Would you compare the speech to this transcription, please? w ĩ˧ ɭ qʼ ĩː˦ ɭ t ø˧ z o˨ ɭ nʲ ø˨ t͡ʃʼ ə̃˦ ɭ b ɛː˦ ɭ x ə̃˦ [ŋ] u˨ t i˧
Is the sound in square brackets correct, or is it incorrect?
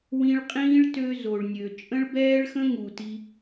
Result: correct